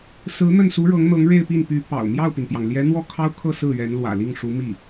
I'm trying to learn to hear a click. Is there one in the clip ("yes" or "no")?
no